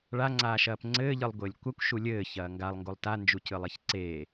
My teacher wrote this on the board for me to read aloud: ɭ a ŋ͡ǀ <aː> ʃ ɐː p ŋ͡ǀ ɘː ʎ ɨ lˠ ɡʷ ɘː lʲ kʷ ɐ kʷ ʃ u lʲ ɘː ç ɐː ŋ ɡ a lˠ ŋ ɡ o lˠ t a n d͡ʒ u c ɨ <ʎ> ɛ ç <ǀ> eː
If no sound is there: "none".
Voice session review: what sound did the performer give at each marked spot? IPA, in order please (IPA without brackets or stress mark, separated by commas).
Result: aː, lˠ, ǀ